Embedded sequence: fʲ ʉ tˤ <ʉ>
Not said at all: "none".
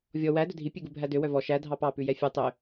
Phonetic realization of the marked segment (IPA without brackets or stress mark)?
ø